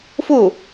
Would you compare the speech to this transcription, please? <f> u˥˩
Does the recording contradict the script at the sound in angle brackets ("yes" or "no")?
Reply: no